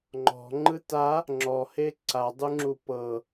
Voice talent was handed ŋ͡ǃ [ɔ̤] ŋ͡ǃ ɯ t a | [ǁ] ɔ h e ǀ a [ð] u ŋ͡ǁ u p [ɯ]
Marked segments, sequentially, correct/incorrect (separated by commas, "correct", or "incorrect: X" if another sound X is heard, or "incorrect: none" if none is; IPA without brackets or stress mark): correct, incorrect: ŋ͡ǁ, incorrect: dˤ, incorrect: ɤ